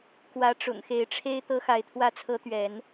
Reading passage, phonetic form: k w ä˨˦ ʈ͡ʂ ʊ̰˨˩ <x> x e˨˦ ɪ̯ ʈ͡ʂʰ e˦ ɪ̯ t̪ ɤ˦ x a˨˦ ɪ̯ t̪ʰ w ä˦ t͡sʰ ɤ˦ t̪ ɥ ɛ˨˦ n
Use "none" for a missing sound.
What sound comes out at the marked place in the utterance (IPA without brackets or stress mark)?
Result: ŋ